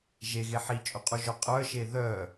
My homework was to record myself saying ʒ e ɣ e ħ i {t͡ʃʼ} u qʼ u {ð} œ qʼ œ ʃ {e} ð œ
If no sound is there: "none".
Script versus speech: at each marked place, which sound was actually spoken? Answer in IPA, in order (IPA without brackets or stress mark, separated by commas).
t͡ʃʼ, ʒ, e